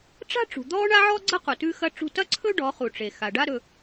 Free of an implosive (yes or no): yes